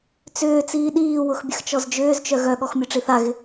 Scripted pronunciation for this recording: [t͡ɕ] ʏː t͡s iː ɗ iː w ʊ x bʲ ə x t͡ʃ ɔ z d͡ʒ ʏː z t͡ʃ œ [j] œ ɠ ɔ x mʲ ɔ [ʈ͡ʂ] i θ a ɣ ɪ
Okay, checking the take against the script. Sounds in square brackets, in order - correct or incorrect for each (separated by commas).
incorrect, incorrect, correct